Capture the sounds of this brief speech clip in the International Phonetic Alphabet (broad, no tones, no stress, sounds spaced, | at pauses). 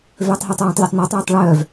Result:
v øː tˤ ɦ ɪː tˤ w ĩ tˤ lʲ œ tˤ n o tˤ w e tˤ ɭ œː v